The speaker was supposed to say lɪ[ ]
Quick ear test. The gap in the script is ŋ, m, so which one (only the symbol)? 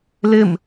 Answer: m